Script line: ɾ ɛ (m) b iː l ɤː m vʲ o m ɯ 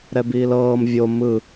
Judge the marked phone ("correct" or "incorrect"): incorrect